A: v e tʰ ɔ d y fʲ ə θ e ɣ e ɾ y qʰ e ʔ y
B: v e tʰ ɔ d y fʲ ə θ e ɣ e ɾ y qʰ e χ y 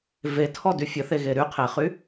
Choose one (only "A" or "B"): B